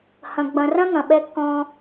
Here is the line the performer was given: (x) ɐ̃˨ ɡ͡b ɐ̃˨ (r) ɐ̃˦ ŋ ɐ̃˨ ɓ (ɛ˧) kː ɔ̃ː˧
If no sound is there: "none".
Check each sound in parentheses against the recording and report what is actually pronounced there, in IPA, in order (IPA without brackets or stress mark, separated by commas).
h, r, ɛ˧